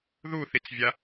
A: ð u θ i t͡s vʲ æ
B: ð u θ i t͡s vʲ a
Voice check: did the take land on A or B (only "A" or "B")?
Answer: B